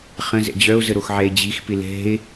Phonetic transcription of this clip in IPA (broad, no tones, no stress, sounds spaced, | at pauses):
χ ə̃ z ɛ̰ d͡ʑ œ o̯ z ə ɾ o x ʕ ɛ e̯ d͡ʑ i x p ɪ l ɛ̤ e̯